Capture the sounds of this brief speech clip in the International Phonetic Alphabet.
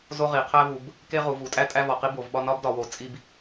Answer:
zo˥ʁi˩˧ qʰæ˥vu˩˧b | ke˥ ʁu˩˧vu˩˧tʼæ˥ tʼæ˥vɒ˩˧ qi˥bo˩˧vɓɒ˥ nɒ˥bdɒ˩˧wo˩˧ t͡sʼi˥b

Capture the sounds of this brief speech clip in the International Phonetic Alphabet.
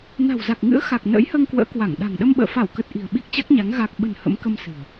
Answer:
na̤˨˩wza˨˩k̚ŋɨ̰˧˥ə̯ xa˨˩k̚nə̰ː˧˥jhəː˧ŋ kwə̰ː˧˥kwa˧˩ŋ ɗa̤˨˩ŋɗə˧mɓə̰ː˧˨ fa˧˩wkə˨˩t̚ ʔi̤˨˩ə̯ɓi˦˥k̚t͡ɕa˦˥k̚ɲa˨˦ŋ ɣa˨˩k̚ɓə̤˨˩n hə̰˧˥mkə˧msɨ̤˨˩ə̯

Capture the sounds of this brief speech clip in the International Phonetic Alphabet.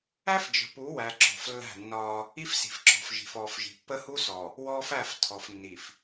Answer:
æ˦fd͡ʒə̤˨pu˨˦wæ˨ ǁɔ̤˨flːæ̤˦˨nːɒː˦ | i˦fsi̤˨fǁɔ̤˨fʒi̤˨f ɔː˨fʒi̤˨ pːə˦hu˦sɔ˨ | wɔː˦fæ˦˨ftʰɔ˨fnːi˨f

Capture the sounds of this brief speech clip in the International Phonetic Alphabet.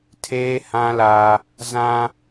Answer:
tʰeː˦hã˦la˦ | zã˦

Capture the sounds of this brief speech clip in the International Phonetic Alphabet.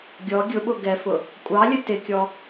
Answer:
ɡʲɔ ɡʲʊɓʊ ɡɛfʊ | kʷʼɑlʲə tɪkʲɔ

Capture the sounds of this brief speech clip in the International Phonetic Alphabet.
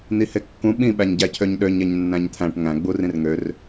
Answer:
n̪ihekːũ ɓĩ ɓæɲɟæcʰøɲɗøɲ eɲnːæ̃ɲt̪ʰæ̃ʈ ŋæ̃ ɡ͡burĩrŋør

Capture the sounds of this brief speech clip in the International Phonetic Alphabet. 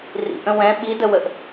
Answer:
rḭʔə̃ wɛ̃ ɓidəwəʔ

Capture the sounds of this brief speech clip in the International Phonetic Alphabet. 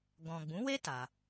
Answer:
ɡɔ̃˨ɡ͡bũ˨˦we˦ ta˧

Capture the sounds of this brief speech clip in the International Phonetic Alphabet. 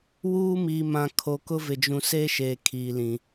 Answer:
wuː˦miː˨mã˨ kʰo˨kʊ˦ vɪ˨d͡ʒũ˨ seː˦ʃeː˨ kʰiː˨lĩ˨

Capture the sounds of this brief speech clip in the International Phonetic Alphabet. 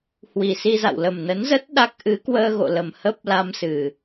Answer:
hwi˨˩si˧za̰˧˨w lə˨˩mnə˨˦nzə˦˥t̚ ɗa˦˥k̚ ʔɨ˨˦kwəː˧ɣo̰˧˨lə˨˩m hə˦˥p̚ la˧msɨ˨˩

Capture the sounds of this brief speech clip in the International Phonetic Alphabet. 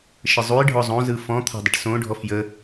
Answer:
ʃəzˤujɖʱɔ zˤõzɯ fɔ̃t̪ʰa̤ dˤəʈsõɖʱɔf jə

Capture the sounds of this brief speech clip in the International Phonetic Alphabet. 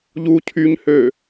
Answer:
ʎu cʰyɲhø

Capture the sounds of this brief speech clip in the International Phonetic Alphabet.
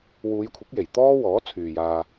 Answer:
wuː˨˧jkʷʰɪ˨˥k̚je˨˩j t̪ɔː˥wɔː˨˥t͡sʰyː˨jaː˧

